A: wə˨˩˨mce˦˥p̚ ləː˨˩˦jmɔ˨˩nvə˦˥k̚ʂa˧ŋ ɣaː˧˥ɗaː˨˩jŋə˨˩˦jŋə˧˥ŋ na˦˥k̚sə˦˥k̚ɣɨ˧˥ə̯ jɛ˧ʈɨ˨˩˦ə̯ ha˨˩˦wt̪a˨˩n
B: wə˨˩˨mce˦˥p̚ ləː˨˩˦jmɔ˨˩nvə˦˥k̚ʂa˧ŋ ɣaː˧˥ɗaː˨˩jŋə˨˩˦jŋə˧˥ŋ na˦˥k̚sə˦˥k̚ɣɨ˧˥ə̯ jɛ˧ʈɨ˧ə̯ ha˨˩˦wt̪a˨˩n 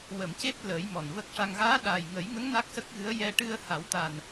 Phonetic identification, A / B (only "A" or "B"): B